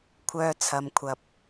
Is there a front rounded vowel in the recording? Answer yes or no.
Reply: yes